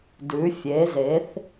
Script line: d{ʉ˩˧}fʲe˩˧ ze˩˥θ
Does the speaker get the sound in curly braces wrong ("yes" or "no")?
no